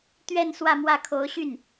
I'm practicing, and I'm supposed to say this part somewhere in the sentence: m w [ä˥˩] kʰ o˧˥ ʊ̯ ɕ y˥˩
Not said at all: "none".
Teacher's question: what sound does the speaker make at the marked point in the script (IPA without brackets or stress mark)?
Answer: ä˥˩